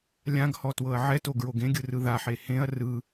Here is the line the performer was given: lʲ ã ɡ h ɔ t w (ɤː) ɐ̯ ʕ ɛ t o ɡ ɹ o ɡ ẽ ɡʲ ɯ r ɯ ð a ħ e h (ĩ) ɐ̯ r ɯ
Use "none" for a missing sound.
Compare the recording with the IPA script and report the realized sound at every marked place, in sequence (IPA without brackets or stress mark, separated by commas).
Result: ɤ, ẽ